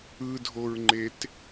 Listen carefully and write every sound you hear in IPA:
ɯ dʱ o ɹ ŋ͡ǃ e t

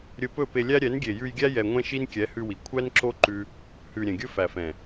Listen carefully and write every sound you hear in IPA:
ɾʲ ɵ˧ p ɵ˦˨ p e˧ lʲ æ˦ ɾʲ ɛ˨˦ n ɡʲ e˨ j ʉ˧ j ɡʲ æ˦ j ɛ˧ ŋʷ ɛ̃˦ ʃ i˦ n kʲ ɛ˨˦ h ʉ˧ w i˨ kʷʰ æ˦ n ǁ o˦ ǃ ʉ˦ | h ʉ˨ ɾʲ ɛ̃˨ ɡʲ ɵ˦ f æ˨ f ɛ̃˨

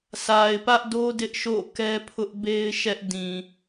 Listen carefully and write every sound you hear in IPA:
s a˨ ɪ̯ p ä˦ ʔ d o˦ d ɪ˦ ʔ ʃ o̰˦˨ k ɛ˦ pʰ ʊ˦ ʔ b e˦ ɪ̯ ʃ ɛ˦ ʔ d ĩ˨

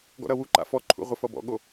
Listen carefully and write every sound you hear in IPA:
ɡ ɔ̰ ɾ ʌ w u ǃ a̰ f ɔ ǃʰ ṵ ʁʷ ɪ f ʌ b ɔ̰ ɠ o

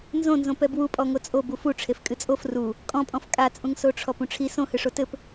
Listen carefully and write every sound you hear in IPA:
n z õ n z õ p ɛ b w u pʼ ɔ ŋ o t͡sʼ o b u f u ʈ͡ʂʰ e f kʼ ɨ t͡sʼ o f r u | kʼ ɔ̃ pʼ ɔ̃ f kʼ a t͡sʼ ũ ŋ s o ʈ͡ʂʰ ɔ p ũ ʈ͡ʂʰ i s õ h ɨ ʂ o t ɘ p

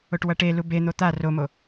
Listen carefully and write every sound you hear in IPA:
o ʈ w ʌ ʈ e l u b e n̪ o t̪ a r o m o

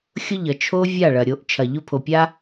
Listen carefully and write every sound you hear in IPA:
xʲ ʊ˦ ʎ ʌ˨ t͡ʃʰ o˦ vʲ a˦˨ ɭ ɐ˨ ɾʲ o˨˦ ʔ t͡ʃʰ ɐ˨ ʎ ʊ˧ pʰ o˨ pʲ a˦

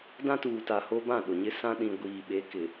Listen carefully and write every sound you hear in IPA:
d ã˦ t uː˨ t a˨ h o˦ b ã˦˨ ɗ ʊ˨ ɲ ɪ˦ s ã˦ ɗ ĩ˨ ɡʷ iː˨ ɓ e˨˦ k ɪ˨

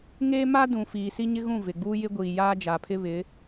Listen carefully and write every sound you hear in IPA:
ŋ eː˦ m a˦ d ũ˨ f iː˨ s i˦ ɲ ɪ˦ ɣ ũ˦˨ v ɪ˨ ɡ͡b uː˦ j ɪ˦ ɡʷ iː˨ j aː˦ d͡ʒ a˨ pʰ ɪ˦ β ɪ˨˦

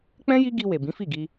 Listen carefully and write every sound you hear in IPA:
k͡p ɛ̃˦ j i˦ ɡ i˧ w e˨ b ĩ˨˦ f i˦˨ ɡ i˧

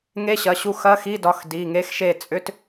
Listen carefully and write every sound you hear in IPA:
ŋ e˧˥˧ ɕ ɐ˩˧˩ ɕ u˦˨ x ɐ˧˥˧ x i˧˥˧ d ɒ˩˧˩ x d i˩˧˩ ŋ e˦˥ x ʃ e˦˨ t͡sʼ ʏ˦˥ t

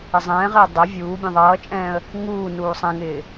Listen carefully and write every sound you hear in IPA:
ɪ zˤ ɛ̃ː ʁ ɪː dˤ ɛ vʲ uː bʲ ɛ̃ ðˤ ʌː t͡ʃʼ ɛ̃ː ə̯ | ŋ uː n uː sˤ ɛ̃ ŋ ɪː

